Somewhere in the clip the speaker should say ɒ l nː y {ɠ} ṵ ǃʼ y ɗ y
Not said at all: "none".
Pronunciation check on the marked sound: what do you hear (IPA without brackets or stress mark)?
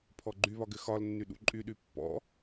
ɗ